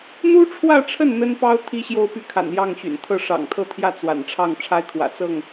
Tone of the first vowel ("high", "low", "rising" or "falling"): high